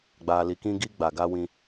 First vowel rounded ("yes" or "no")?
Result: no